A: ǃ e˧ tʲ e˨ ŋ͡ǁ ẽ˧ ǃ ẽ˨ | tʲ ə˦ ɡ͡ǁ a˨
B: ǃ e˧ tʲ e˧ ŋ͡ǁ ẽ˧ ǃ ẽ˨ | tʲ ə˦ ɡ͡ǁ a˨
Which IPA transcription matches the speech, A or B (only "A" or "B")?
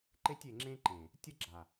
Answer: A